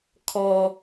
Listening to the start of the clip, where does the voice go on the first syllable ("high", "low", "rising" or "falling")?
low